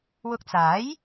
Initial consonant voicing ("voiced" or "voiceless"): voiced